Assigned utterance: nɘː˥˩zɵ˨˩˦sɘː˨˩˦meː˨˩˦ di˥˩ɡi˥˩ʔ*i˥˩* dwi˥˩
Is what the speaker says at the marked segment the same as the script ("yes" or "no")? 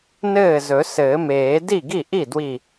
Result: yes